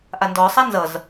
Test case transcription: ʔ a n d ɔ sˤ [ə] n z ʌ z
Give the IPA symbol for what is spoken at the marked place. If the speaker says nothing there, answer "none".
a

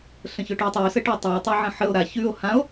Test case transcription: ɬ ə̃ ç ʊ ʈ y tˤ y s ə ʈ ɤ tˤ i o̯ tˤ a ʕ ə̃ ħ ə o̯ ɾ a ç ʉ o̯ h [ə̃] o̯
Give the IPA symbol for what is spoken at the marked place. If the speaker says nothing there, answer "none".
ã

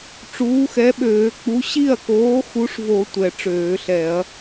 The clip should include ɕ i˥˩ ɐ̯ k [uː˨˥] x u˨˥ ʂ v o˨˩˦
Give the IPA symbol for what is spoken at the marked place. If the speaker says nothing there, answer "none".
oː˨˥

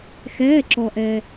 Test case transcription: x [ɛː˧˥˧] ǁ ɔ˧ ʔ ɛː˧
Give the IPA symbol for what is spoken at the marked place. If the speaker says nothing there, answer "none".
ɛː˧˥˧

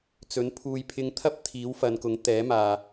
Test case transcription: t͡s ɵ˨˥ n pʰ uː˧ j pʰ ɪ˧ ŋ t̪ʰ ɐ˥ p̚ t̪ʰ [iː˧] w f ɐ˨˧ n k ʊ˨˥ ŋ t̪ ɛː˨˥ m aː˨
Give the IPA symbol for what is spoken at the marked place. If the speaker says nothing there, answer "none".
iː˨˥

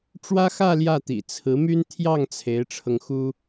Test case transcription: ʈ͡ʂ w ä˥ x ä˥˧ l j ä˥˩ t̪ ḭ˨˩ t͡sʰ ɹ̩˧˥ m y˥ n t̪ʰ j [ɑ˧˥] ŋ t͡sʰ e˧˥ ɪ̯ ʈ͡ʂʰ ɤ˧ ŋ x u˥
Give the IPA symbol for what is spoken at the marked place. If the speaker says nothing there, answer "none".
ɑ˥˩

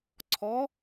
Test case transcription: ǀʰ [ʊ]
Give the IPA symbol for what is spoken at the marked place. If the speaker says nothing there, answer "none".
ɔ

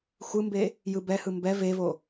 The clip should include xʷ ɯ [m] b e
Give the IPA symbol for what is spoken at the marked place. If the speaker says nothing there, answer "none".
m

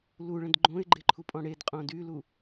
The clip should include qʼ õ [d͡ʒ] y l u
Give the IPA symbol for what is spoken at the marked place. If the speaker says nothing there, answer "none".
d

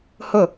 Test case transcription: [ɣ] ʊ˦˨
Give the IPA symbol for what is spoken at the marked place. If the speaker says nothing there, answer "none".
h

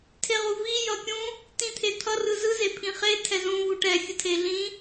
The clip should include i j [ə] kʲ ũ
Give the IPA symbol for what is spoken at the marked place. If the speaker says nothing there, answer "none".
ʌ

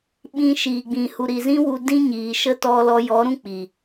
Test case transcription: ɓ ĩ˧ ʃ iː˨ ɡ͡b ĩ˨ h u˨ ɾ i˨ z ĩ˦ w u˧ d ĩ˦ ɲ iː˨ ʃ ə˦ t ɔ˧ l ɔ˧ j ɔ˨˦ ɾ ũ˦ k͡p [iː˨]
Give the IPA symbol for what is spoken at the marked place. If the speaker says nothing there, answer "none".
iː˨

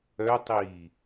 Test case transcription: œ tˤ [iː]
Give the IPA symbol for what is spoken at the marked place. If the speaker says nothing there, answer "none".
iː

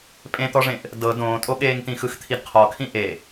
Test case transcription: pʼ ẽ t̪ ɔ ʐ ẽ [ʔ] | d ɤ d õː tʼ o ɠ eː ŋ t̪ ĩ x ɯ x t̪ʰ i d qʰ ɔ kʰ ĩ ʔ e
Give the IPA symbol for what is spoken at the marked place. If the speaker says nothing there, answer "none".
ʔ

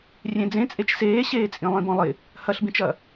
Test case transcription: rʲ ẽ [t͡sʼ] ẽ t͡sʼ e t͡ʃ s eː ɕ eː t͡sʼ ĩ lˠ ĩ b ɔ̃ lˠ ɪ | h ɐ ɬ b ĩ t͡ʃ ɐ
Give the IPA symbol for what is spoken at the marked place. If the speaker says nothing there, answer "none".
d͡z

